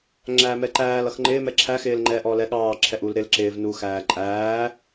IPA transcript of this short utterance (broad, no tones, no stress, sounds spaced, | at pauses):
ŋ͡ǁ æː m ɛ ǃ æː l ʌ x ŋ͡ǃ ɪː m ɛ ǁʰ æ x ɪː l ŋ͡ǃ ɛ ʔ ɔ l ɛ ɠ ɑː ǁʰ ɛ ʔ u l ɾ ɪ l ǁ ɪː v n u x æː ǃʼ æː